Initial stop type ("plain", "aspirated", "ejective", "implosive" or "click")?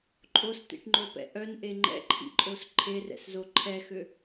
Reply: click